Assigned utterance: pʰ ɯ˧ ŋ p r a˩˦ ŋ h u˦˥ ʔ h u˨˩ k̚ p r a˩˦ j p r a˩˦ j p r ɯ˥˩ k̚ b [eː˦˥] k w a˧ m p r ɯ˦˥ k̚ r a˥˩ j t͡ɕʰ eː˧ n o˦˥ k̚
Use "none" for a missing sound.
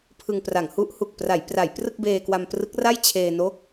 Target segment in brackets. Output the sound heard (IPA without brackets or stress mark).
eː˧